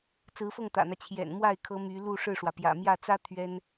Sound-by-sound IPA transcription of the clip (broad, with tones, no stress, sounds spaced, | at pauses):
t͡s ɹ̩˧˥ f ɤ˥˩ ŋ t̪ ä̰˨˩ n̪ ä˦ t͡ɕʰ j ɛ̰˨˩ n m w a˥˩ ɪ̯ kʰ ɤ˧˥ m y˧˥ l u˥˧ ʂ ɻ̩˥˩ ʂ w ä˩ p j ä̰˨˩ m j ä˥˩ t͡s ä˥ t̪ʰ ɥ ɛ˥ n